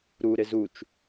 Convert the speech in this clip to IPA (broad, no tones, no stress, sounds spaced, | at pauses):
ɾ u ɾ ɪ z u t͡ʃ